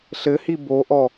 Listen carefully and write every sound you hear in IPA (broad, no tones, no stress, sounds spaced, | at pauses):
ɬ ɘ h i b o ʔ ɔ